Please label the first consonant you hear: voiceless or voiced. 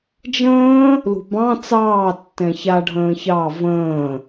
voiced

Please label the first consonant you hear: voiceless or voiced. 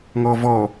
voiced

